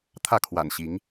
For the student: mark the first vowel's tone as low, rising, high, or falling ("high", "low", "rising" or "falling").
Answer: falling